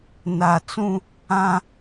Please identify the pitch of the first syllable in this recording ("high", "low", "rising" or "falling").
low